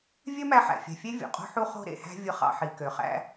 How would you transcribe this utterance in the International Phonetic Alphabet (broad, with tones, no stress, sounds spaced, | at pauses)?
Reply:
vʲ ø˥ m æ˧ ħ æ̰˩ fʲ æ̤˩ fʲ e˥ vʲ o̰˩ qʼ o̤˥ ħ u˥ χ o̤˥ ɾ ḛ˩ h æ̤˥ vʲ ɯ˧ χ ɑ̰˧ ħ i˩ k ø˩ χ æ̰˥